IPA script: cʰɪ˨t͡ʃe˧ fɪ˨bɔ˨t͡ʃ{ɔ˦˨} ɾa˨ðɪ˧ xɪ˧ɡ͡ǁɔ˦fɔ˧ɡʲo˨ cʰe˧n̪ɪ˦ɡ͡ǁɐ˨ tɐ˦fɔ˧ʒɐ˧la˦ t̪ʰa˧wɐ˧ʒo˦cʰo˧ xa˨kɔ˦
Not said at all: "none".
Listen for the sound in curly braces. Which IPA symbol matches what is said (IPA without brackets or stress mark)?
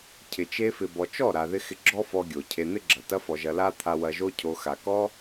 ɔ˦˨